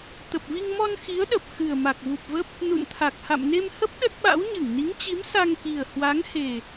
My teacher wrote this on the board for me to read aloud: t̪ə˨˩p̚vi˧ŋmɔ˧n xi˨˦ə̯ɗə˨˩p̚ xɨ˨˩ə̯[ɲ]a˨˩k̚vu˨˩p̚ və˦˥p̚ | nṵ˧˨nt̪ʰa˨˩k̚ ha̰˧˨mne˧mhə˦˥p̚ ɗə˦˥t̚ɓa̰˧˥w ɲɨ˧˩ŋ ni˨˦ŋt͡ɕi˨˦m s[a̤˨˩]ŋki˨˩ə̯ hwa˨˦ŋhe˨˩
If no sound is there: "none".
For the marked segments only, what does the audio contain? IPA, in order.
m, a˧

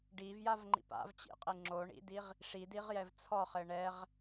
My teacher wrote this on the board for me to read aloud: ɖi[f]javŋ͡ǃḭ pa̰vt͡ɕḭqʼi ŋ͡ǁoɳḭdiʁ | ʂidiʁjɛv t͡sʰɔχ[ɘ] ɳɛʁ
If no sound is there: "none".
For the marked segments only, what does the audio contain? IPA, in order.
v, ɘ

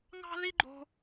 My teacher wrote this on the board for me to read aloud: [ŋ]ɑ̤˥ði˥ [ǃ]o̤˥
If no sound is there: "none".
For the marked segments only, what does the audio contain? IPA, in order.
ŋ, ɡ͡ǃ

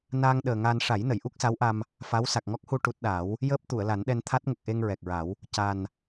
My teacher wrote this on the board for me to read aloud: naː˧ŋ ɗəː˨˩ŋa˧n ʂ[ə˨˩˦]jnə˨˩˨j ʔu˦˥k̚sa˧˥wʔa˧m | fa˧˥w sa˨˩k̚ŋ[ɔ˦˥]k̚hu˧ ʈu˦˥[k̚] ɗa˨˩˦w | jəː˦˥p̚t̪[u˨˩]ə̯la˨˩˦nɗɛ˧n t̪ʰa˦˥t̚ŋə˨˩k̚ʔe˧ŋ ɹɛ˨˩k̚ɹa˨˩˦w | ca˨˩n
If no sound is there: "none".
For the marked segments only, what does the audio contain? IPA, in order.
a˨˩˦, ɔ˦˥, t̚, u˨˩˨

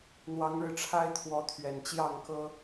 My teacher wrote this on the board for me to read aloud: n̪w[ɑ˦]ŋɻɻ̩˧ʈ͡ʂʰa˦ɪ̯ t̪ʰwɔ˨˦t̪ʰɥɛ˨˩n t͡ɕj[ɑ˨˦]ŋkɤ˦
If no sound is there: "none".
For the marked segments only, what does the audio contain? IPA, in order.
ɑ˨˦, ɑ˥˨

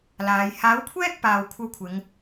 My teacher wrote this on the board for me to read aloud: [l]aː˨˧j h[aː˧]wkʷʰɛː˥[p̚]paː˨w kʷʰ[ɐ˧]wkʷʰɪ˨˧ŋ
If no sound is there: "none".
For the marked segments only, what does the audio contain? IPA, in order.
l, aː˨˥, k̚, ɐ˧

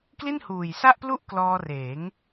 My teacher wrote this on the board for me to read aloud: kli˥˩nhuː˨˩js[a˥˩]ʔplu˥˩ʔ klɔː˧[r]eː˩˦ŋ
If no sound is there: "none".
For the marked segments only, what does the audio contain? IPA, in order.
a˥˩, r

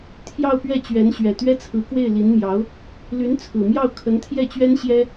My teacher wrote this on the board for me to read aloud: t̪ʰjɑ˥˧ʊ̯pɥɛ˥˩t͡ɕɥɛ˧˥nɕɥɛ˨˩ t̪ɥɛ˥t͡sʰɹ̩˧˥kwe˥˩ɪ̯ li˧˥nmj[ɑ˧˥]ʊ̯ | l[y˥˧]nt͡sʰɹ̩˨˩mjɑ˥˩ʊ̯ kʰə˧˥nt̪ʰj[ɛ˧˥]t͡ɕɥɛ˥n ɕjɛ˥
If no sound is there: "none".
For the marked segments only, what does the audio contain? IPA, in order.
ɑ˧˥, y˧˥, ɛ˥˩

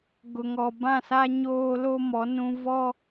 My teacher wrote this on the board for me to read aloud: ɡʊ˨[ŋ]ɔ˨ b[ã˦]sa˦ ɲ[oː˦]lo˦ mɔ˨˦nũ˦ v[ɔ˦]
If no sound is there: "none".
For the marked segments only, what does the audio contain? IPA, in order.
ŋ, ã˦˨, oː˦, ɔ˦

